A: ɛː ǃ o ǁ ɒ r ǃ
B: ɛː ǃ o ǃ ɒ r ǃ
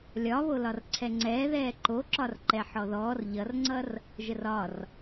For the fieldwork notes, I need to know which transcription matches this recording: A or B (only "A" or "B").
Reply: A